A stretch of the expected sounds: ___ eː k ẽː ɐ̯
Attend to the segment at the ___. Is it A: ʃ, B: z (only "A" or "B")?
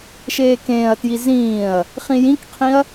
A